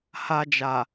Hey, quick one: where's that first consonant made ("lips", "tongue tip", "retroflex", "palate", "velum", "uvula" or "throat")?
throat